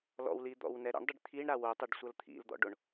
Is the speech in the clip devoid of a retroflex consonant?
no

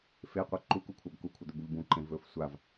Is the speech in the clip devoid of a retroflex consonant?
yes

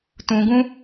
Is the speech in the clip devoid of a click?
yes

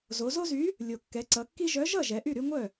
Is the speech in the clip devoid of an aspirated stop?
yes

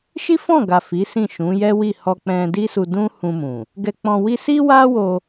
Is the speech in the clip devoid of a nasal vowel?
no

